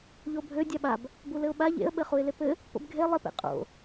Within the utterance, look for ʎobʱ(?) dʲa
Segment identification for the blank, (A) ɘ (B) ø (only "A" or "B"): B